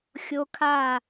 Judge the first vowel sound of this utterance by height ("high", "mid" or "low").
mid